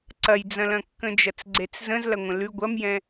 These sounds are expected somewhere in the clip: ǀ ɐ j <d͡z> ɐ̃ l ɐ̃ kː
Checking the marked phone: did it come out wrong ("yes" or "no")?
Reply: no